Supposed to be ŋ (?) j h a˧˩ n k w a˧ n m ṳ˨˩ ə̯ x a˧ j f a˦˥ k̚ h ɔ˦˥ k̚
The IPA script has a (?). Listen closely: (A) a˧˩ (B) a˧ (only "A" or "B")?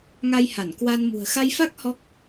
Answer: B